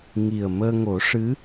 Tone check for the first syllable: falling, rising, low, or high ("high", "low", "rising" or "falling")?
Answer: low